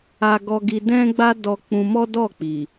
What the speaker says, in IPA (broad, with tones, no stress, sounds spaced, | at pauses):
a˧ ɡ ɔ˧ ɡ i˧ d ɛ̃˦ ɡ͡b a˦ d ɔ˧ k͡p ũ˧ m ɔ˦ d ɔ˦˨ k͡p i˨